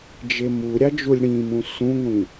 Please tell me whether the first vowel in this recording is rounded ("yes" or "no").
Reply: no